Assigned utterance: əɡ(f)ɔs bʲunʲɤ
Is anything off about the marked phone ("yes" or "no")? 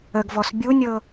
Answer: yes